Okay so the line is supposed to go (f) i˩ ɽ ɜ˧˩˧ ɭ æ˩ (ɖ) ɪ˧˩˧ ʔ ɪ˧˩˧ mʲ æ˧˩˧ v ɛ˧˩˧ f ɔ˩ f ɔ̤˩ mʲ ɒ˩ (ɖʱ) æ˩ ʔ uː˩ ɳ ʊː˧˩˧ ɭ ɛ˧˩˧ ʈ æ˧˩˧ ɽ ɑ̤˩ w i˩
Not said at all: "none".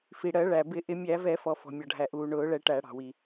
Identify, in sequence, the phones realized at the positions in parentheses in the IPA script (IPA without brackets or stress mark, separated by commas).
f, b, ɖʱ